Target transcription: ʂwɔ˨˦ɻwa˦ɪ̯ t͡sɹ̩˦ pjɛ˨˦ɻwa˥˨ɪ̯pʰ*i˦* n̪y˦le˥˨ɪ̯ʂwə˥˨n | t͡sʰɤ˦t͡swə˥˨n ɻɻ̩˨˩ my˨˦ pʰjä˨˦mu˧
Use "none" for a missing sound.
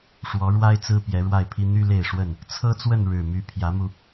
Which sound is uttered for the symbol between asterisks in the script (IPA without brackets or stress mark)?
i˦